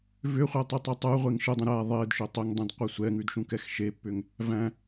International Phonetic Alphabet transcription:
v ʏ χʷ ɛ tˤ ʉ tˤ u tˤ ʉ ʁʷ e ŋ ʃ ɯ dˤ ĩ ɾ æ ðˤ e d ʃ ʏ tˤ ʏ ŋ dˤ ĩ d qʷ e sʷ ɛ ŋ ʉ d ʃ ũ k ɛ x ʃ e pː ʏ ŋ | v æ̃

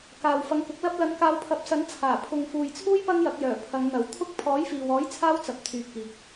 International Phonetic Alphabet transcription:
k aː˨ w f ɐ˨˥ ŋ k ʊ˨˥ k̚ l ɐ˥ p̚ l ɐ˨˧ n k aː˨˧ w pʰ ɐ˨˥ p̚ s ɐ˨˥ n t͡sʰ aː˨˩ pʰ ʊ˨ ŋ f uː˨ j t͡sʰ uː˥ j p ɐ˥ ŋ j ɐ˨˥ k̚ j œː˨˩ pʰ ɐ˨˧ ŋ n̪ ɐ˨˥ w t̪ʰ ʊ˥ k̚ pʰ ɔː˨˥ j f iː˨ w ɔː˨˥ j t͡sʰ aː˥ w t͡s ɐ˨˥ p̚ t̪ʰ yː˨ t̚ k iː˨ k̚

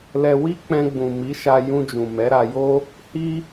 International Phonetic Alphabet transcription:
l ɛ˧ w i˦ k͡p ɛ̃˧ ɡ͡b ũ˨ m i˨˦ ʃ a˧ j ũ˧ d͡ʒ ũ˨ m ɛ˨˦ ɾ a˧ j o˦ | h i˦

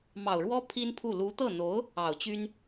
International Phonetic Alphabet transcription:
m ɑ˨˩ ʊ̯ ɻ w ɔ˥ pʰ i˥ n pʰ u˥˩ l u˧˥ t̪ ɤ˥˩ n̪ o˧˥ ʊ̯ | ɑ˨˩ ʊ̯ t͡ɕ y˥ n

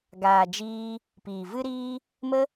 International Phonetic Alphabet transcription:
ɡ aː˨ d͡ʒ iː˧ | p iː˨ v ɨ˦ ɾ iː˦ | m ə˦

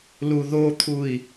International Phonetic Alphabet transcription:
l u ð o t̪ʰ u i̯

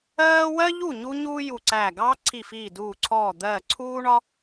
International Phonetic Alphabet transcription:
ɜː˥ w ɜ˥ ʎ u˥˩ ɲ u˥ ɲ uː˥ j u˧˩ ǀ æː˧˩ ɡ ɑː˥ ǀʰ i˧˩ f iː˧˩ d uː˧˩ ǀʰ ɔː˧˩ d̪ ɜː˧˩ ǀʰ uː˥ ɳ ɒ˥

